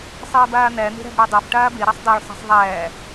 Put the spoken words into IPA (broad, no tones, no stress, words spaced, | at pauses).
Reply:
sˤeːbaːn̪æ n̪e̤ɾæ̤bɽadˤaf ʈaːbe ɾasˤdˤæɭ sˤa̤sˤðˤæː